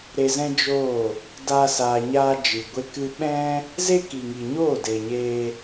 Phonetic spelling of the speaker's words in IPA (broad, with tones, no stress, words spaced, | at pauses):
ɾe˧zɛ̃˦d͡ʒoː˦˨ | daː˧saː˨ɲaː˧ d͡ʒɨ˨ɡʷe˧ kɨ˦ ɓɛ̃˦ | ze˦ ki˨ŋi˨ɲoː˦˨ de˨ɲeː˧